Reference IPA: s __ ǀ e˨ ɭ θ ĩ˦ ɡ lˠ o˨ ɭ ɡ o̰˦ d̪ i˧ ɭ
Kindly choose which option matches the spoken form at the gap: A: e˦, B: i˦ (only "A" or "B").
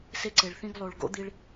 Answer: A